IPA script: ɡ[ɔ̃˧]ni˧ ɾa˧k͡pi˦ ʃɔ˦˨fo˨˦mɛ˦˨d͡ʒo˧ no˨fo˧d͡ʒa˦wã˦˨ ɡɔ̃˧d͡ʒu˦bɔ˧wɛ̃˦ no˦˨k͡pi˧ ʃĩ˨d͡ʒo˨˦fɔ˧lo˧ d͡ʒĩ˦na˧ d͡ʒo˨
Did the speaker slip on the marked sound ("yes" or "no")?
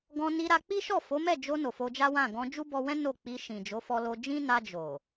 no